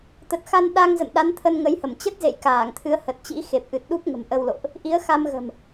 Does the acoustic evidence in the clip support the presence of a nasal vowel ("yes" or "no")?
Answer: no